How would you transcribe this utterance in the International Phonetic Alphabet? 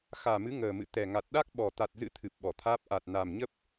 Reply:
x aː˨˩ m ɨ˨˦ ŋ əː˨˩ m ɨ̰˧˨ t̪ ɛ˨˩ ŋ a˨˩ t̚ ɗ a˦˥ k̚ ɓ ɔ˨˩ t̪ a˨˩ t̚ z ɨ̰˧˥ t̪ʰ ɨ˨˩ p̚ ɓ ɔ˧˩ t̪ʰ aː˦˥ p̚ ʔ a˨˩ t̚ n a˨˩ m ɲ ə˦˥ p̚

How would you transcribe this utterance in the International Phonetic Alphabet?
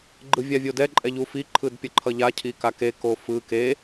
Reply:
ɡ͡ǃ ɯ vʲ a vʲ o d ɛ ǃʼ ɛ ʎ u f i ǃʰ ɯ d pʲ ʌ ǃʰ ʌ ʎ a cʰ i k a k e k o f ɯ k e

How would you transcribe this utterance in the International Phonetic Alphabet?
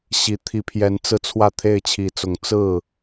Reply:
ɕ i˨˩ t̪ʰ i˨˦ pʰ j ɛ˨˦ n t͡s ɹ̩˧ t͡sʰ w ä˥˨ t̪ʰ e˥˨ ɪ̯ t͡ɕʰ i˨˦ t͡s ʊ˨˦ ŋ t͡s ɹ̩˥˨

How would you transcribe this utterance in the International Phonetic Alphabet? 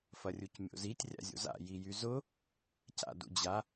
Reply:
f ɐ rʲ u c mʲ o̰ z i tʲ rʲ a̰ zʲ o̰ z a̰ j i j y z ʊ | c a̰ d ṵ d͡ʑ a

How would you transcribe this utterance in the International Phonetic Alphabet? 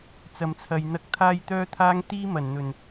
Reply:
t͡s ɐ˨ m t͡sʰ ɐ˨ j n̪ ɐ˧ k̚ t̪ʰ aː˥ j t̪ œː˥ t̪ʰ aː˥ ŋ t̪ iː˥ m ɐ˨˩ n n̪ ɵ˨˩ n

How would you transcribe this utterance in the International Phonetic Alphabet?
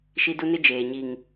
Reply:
ʃ i˦ d u˦ n ɪ˦ d͡ʒ eː˨ ɲ i˨ ŋ

